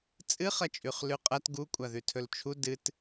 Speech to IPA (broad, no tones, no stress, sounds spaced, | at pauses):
t͡sʼ ɨ χ ɐ t͡ʃʼ ʉ χ l ʉ qʼ ɐ t ɡ u kʷʼ a ð ʉ tʰ ɵ l t͡ʃʰ u d ɨ t